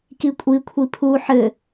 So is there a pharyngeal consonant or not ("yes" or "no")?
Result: yes